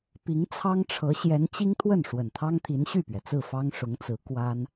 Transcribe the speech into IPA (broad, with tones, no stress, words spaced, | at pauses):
pi˧˥ŋt͡sʰɑ˥ŋʈ͡ʂʰɤ˧˥ ɕjɛ˧˥nt͡ɕi˥ŋt̪ʰwə˥˩n ʂwə˨˩nt̪ʰɑ˥ŋt̪ʰi˧˥n ɕy˥˩pɥɛ˩t͡sɹ̩˥˩ fɑ˥ŋʂʊ˧˥ŋt͡sɹ̩˧˥ kwa˥n